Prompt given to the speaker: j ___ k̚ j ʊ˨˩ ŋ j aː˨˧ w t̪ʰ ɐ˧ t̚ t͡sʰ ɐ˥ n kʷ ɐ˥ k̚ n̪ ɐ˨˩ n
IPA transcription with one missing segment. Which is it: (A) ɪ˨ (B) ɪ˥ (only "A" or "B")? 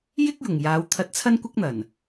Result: B